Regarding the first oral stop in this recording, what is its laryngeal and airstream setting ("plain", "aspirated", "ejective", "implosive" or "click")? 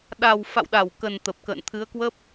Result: implosive